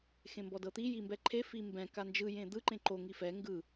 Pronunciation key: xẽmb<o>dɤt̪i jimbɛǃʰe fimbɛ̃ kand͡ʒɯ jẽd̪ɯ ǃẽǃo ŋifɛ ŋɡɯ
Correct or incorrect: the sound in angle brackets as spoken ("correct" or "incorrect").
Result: incorrect